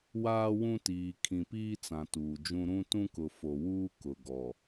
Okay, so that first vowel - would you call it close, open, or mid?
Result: open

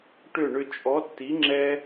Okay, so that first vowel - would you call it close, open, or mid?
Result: close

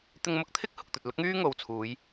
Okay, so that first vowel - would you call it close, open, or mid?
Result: close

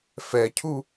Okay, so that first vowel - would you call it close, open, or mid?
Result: mid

